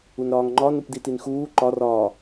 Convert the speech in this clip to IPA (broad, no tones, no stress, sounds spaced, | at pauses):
u n ɾ ɒː ŋ ŋ͡ǃ ɒ n u p d i t i n x uː ǃ ɒ r ɒː